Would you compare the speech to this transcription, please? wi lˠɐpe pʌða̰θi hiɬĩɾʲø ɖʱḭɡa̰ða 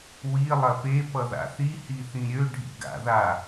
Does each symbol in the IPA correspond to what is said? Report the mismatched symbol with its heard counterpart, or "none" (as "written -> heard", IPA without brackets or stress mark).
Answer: ɬ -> θ